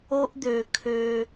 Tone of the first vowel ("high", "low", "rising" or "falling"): high